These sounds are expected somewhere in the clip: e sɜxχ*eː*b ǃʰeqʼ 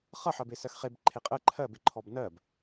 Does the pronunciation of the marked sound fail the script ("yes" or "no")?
yes